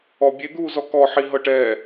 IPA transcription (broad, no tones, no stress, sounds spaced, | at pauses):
ɔ bʲ e d̪ uː z ɔ k ɔ ħ i ɦ ɤ ʈ ɛː